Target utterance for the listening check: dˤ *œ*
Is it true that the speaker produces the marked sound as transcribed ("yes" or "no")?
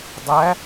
no